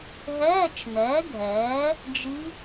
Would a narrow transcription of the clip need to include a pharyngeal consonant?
no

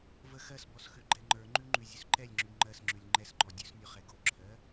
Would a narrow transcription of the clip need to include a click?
yes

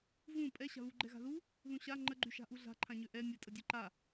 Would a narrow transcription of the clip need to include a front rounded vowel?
yes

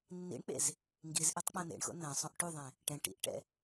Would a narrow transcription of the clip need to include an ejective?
no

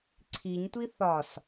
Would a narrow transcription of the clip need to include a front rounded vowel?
no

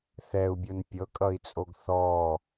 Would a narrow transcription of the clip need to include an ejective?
yes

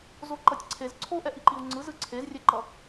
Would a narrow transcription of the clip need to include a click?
yes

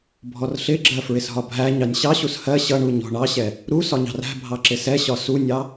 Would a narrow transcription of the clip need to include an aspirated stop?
no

